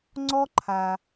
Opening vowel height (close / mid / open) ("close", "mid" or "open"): mid